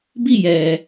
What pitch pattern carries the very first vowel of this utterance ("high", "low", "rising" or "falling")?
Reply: falling